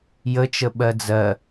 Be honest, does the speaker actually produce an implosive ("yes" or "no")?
yes